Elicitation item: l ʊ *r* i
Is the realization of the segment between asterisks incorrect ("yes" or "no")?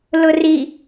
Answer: no